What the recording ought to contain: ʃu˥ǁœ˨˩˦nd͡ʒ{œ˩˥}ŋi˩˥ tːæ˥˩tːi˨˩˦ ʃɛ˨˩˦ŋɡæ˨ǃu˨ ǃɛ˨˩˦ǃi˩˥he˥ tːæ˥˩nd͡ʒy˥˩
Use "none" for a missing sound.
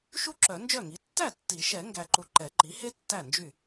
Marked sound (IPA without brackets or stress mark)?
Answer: œ˥˩